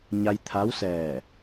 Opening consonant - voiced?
yes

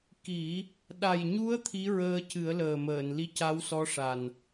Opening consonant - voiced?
no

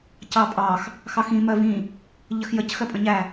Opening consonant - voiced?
no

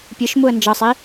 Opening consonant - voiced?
no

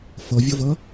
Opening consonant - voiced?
no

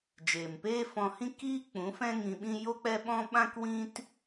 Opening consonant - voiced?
yes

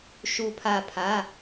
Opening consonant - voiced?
no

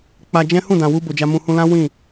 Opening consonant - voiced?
no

